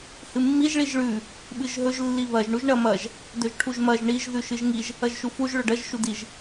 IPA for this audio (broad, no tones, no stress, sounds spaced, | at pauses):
h ɨ mː i ʒ ɭ i ʒ ɭ ʉ | ɓ ɨ ʒ ɦ ɵ ʒ lː i β ɐ ʒ ɳ u ʒ ɳ ɐ m ɐ ʒ | d ɵ ʒ ʈʰ u ʒ m ɐ ʒ ɳ i ʒ ð ʉ ʃ ɨ ʒ ŋ i ʒ | ɐ ʒ ʃ u f u ʒ ɭ ɵ ɖ ɐ ʒ ʃ u d i ʒ